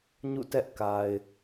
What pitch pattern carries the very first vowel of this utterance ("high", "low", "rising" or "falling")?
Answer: falling